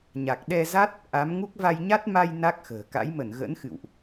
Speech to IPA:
ɲ a˨˩ k̚ ɗ ɛ˧ z a˦˥ t̚ | ʔ a˨˦ m ŋ u˦˥ k̚ v a˧ j ɲ a˦˥ t̚ m a˧ j n a˦˥ k̚ x ə̤ː˨˩ k a̰˧˥ j m ə˧˩ n ɣ ə̰˧˥ n x ɨ̰˧˨ w ʔ

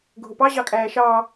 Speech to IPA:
ɡʱ ʊ p ɑ ʑ ɑ kʼ æː ʃ ɑː

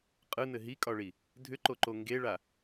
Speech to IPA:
qʼ ɯ n ɘ ɦ i kʼ ɒ ɭ i | dʱ ʏ ǃ o ǃ o ŋ ɡ e ɭ a

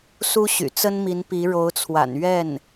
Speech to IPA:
s u˥ ɕ y̰˨˩ t͡s ə˥ n m i˧˥ n p i˧˥ ɻ o˧˥ ʊ̯ t͡sʰ w a̰˨˩ n ɥ ɛ˥˩ n

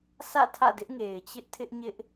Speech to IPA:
s ä̰˦˨ tʰ ä̰˦˨ d ɪ˦ ʔ ŋ e˨ ɪ̯ t͡ɕ ɪ˦ ʔ tʰ ɪ˦ ʔ ɲ ɪ˦ ʔ

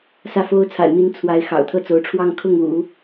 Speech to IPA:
s ä˥˩ f o˥ ʊ̯ t͡sʰ a̰˨˩ ɪ̯ m i˧˥ n t͡sʰ w a˧˥ ɪ̯ x ɑ̰˨˩ ʊ̯ t̪ʰ ɤ˥˩ t͡s o˧˥ ʊ̯ ʈ͡ʂʰ w ɑ˥˧ ŋ kʰ ʊ˥˩ ŋ ṵ˨˩˦

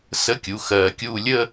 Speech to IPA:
s ə˧˥˧ kʲ u˩˧˩ x ɜː˧ kʲ uː˥˧ lʲ ə˥˧

